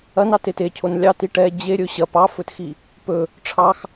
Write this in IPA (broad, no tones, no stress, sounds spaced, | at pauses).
ɐ n ɑ t e t e cʰ o n lʲ ɑ t i ʈ ɛ d͡ʑ e ɾʲ ɵ ɕ ɐ p ɑ f ɵ t x i | p ɵ | ʈ͡ʂʰ ɑ x